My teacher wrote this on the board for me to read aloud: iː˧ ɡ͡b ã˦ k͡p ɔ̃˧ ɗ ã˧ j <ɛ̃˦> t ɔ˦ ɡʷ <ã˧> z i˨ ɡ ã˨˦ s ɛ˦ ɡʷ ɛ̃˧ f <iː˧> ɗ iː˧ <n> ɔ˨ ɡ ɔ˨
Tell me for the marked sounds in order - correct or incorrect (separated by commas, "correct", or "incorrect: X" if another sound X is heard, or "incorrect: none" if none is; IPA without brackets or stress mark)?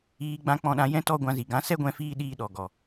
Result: correct, correct, correct, incorrect: ɗ